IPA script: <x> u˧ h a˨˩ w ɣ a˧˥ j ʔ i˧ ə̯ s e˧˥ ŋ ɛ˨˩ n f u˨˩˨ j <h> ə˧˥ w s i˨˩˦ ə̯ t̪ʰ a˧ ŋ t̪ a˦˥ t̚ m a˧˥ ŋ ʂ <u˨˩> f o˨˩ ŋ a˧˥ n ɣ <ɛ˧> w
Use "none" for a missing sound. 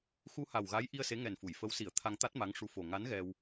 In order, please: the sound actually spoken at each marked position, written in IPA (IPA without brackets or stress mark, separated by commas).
x, f, u˧˥, ɛ˧